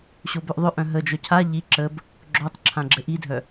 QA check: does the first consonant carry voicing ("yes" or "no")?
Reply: no